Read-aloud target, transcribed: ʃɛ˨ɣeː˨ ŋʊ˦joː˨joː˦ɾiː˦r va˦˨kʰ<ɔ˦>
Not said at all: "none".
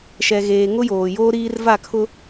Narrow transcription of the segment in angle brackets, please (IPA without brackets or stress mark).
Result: ʊ˦